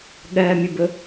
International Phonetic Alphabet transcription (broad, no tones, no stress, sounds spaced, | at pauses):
ɠ ɜ mʲ ʊ b ʊ